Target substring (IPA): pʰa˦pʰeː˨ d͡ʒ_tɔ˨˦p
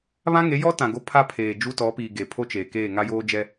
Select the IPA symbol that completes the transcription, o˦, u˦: u˦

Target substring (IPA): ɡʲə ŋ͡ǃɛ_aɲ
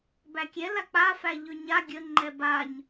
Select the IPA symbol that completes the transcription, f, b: b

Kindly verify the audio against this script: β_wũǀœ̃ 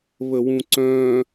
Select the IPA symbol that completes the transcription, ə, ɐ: ə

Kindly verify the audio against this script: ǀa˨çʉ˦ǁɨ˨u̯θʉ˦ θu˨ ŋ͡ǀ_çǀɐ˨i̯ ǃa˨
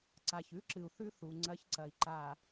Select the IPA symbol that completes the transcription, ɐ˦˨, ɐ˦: ɐ˦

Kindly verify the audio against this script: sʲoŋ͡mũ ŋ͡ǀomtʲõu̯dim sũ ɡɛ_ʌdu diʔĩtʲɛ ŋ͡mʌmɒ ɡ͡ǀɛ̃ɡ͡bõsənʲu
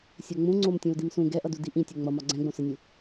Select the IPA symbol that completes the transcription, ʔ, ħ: ʔ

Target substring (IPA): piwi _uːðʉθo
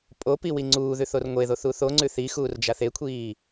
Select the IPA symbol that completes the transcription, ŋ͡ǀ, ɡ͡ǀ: ŋ͡ǀ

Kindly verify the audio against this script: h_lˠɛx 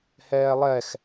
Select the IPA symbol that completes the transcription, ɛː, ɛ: ɛː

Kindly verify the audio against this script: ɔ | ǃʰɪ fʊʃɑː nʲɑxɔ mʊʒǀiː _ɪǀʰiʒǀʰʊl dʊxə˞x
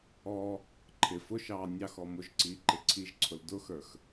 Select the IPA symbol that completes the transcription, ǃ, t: ǃ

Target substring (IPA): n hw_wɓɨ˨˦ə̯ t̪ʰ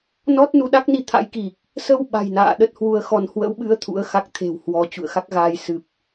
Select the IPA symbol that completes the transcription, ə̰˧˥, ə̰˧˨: ə̰˧˥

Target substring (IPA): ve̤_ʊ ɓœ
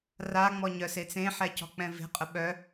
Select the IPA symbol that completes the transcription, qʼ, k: qʼ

